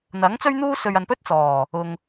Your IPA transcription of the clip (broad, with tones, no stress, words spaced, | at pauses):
n̪ɐ˨˥ŋt͡sɵ˥ɥn̪uː˥ sɵ˧ɥ ɐ˨npɵ˥t̚t͡sɔː˨˩ | ʊ˨ŋ